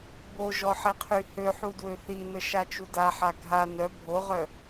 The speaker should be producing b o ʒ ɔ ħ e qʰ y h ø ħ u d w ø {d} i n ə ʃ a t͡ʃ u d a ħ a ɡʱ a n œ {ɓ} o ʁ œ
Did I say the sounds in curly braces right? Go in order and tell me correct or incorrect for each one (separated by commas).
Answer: incorrect, incorrect